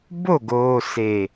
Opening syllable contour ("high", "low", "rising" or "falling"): falling